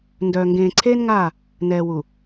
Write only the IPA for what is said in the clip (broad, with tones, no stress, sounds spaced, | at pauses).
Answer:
n d œː˨ ŋ ɡ ẽː˨ ǀʰ eː˦ n ŋ aː˦˨ | n ɛː˨ w u˨